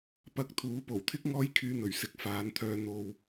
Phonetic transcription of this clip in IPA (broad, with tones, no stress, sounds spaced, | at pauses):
p ɐ˧ k̚ t̪ʰ uː˨˥ p o˨˩ w t̪ʰ ɪ˥ k̚ ŋ ɔː˥ j kʰ yː˧ n̪ ɵ˨˩ ɥ s ɪ˨˥ k̚ f aː˨˧ n t̪ʰ œː˧ n̪ o˧ w